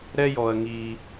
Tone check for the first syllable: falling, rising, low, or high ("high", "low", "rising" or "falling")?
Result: high